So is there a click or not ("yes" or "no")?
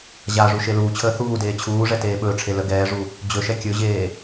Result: no